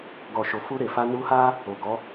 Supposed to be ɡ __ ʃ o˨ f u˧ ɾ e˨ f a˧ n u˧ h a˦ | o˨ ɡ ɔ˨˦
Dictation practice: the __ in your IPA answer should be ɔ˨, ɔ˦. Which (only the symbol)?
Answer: ɔ˨